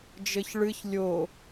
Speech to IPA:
d͡ʒ ɘ ç ɭ ɨ ç lʲ o

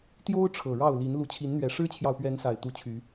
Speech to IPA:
t̪ j o˦ ʊ̯ ʈ͡ʂʰ ɤ˨˩ ɻ ɑ˥˨ ʊ̯ l i˨˦ n l u˨˦ t͡ɕʰ i˨˦ n n̪ ɥ ɛ˨˩ ʂ ɻ̩˦ t͡ɕʰ j ɑ˨ ʊ̯ p ɥ ɛ˨˦ n s a˨˩ ɪ̯ t̪ u˨˦ t͡ɕʰ y˨˦

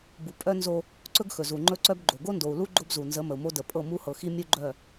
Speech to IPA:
b u˨ pʼ œ˦ n z o˦ | ǀ ɵ˦ ɡ x ɵ˨ z u˨ ŋ͡ǃ ɵ˦ ǀ œ˦ b ɡ͡ǃ o˨ ɡ o˦ n d o˨ u̯ l u˦ ɡ͡ǃ o˦ b z u˨ n z ə˨˦ m ə˨ u̯ m o˦ d ə˨ pʼ ɤ˦˨ m u˦ h ɤ˨ x i˦ mʲ u˦ ɡ͡ǃ œ˦˨

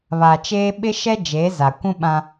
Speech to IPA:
β a˨ t͡ʃ eː˦ ɓ ɪ˦ ʃ ɛ˦ d͡ʒ eː˨˦ z a˨ kʷ ũ˦ ɓ ã˦

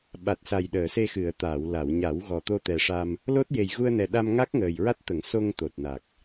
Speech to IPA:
ɓ a˨˩ t̚ s a˨˩ j ɗ əː˨˩˨ s e˧ x ɨ˨˩˨ ə̯ t̪ aː˨˩˨ w l a˨˩˨ w ɲ a˨˩˦ w ɣ ɔ˨˩ t̪ o˧ t̪ ɛ˨˩ ʂ a˧ m | l o˦˥ t̚ j e˨˩ j ɣ u˧ ə̯ n ɛ˨˩ ɗ a˧ m ŋ a˦˥ k̚ ŋ əː˨˩ j ɹ a˦˥ t̚ t̪ ə˨˩˦ ŋ s o˧ ŋ t̪ o˨˩ t̚ n a˨˩ k̚

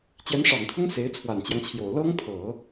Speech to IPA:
t͡ɕ j ɛ˧˥ n ʂ ɑ˨˩ ŋ t̪ʰ ʊ˥ ŋ s e˧˥ ɪ̯ t͡sʰ w a˨˩ n t͡ɕ j ɑ˦ ŋ t͡ɕʰ j o˨˩ ʊ̯ l ɤ˥ ŋ t̪ʰ ɤ˨˩˦

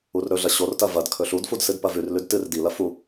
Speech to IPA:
u r ɾ ɵ ɮ ɐ ɕ o r t ɐ v ɐ d kʰ ɵ ɬ u d f u d s ɨ d p ɐ v ʉ r l ʉ d t ɨ r d i l ɐ f u

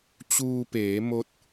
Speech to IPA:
t͡ɕ uː˧ p eː˩˧ m o˧˥ t̚

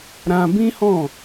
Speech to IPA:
ɾ ã˧ b ĩ˦ h ɔ̃˦˨

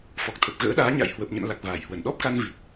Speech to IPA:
f ɔ˨˩ k̚ t̪ʰ ə˨˩ p̚ ɣ ə̰ː˧˥ ɗ aː˨˦ ɲ a̰˧˨ j h w ə˨˩ p̚ ɲ ə̰˧˨ n l a˨˩ k̚ v aː˧˩ j h w ə˧˩ n ɗ ɔ˦˥ p̚ k a˧ n v i˨˩ t̚

